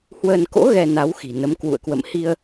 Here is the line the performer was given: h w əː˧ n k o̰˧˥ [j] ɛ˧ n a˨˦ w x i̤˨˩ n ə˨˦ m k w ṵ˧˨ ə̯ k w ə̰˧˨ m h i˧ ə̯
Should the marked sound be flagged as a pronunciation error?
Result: yes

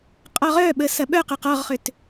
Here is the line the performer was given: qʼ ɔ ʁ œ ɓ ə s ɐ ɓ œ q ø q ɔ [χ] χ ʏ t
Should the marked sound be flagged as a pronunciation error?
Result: yes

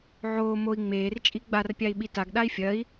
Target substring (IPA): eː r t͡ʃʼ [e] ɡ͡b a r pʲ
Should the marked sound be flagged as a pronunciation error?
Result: yes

